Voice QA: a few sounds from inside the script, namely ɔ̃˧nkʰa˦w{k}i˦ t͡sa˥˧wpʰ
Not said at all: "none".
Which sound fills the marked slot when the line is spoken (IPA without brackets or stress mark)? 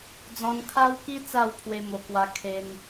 k